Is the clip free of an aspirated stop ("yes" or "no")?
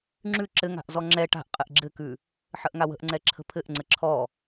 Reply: no